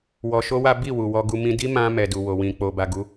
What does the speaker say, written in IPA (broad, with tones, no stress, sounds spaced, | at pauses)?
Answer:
w ɔ˧ ʃ o˦ w a˦ b i˦˨ w u˨ w ɔ˧ ɡ u˧ m ĩ˧ d i˦ m ã˧ m ɛ˨ d u˨ w o˨ w ĩ˨ k͡p o˨ b a˨ ɡ u˧